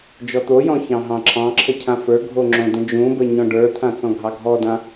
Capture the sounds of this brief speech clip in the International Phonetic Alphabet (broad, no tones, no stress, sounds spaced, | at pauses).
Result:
d͡ʒ ɔ t̪ o j ɔ̃ ç ɑ̃ ɦ ɑ̃ ǁʰ ɑ̃ ǁʰ ə cʰ ã f ə˞ ɡʱ o ŋ͡ǁ õ d ə̃ d͡ʒ ũ b ə ɲ ɔ̃ ɖ ə˞ t̪ʰ ã t͡s ɔ̃ ɡʱ ɑ ɡʱ ɔ d ã